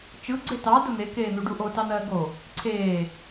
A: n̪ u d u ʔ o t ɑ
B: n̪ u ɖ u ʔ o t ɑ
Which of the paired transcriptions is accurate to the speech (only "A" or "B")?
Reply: B